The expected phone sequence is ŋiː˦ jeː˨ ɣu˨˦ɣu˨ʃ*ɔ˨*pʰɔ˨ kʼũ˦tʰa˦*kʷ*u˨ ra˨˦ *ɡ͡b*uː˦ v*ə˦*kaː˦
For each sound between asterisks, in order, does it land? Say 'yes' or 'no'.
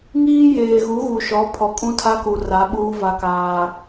no, no, no, no

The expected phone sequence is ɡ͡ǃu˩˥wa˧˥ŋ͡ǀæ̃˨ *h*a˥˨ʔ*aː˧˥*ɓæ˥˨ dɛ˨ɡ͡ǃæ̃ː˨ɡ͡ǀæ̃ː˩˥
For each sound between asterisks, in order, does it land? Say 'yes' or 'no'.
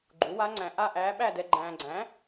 no, no

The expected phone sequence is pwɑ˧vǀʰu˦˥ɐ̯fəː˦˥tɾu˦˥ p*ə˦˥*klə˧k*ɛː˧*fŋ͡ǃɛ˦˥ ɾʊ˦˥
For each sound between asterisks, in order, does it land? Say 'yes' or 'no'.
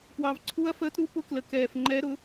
no, yes

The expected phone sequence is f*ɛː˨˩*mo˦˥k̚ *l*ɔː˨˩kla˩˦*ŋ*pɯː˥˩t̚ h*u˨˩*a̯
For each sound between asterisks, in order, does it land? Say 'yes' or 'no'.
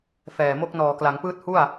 yes, no, yes, no

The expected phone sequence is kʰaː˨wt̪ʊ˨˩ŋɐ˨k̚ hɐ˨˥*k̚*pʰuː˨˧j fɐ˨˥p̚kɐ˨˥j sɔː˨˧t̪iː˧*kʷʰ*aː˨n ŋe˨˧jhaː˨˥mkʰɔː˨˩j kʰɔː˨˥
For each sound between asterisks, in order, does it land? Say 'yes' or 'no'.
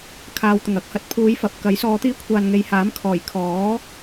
no, yes

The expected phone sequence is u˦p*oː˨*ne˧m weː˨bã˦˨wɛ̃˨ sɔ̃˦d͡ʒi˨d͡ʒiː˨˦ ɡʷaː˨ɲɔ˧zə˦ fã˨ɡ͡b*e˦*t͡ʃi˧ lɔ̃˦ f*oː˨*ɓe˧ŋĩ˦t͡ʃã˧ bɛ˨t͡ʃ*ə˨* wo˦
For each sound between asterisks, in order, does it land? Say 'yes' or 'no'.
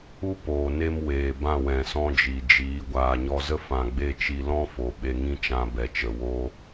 yes, yes, no, yes

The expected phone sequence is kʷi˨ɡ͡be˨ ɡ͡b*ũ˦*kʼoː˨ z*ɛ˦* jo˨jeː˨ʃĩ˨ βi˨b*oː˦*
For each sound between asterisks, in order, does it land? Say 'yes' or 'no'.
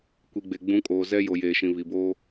no, yes, yes

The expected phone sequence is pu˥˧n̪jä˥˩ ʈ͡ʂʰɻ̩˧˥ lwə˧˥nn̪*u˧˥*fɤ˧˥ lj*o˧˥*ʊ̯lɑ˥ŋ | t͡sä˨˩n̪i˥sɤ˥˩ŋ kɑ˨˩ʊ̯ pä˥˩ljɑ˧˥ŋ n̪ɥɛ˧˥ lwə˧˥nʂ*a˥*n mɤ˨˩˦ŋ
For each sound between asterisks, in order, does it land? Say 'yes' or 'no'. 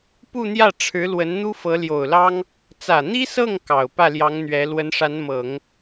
no, no, no

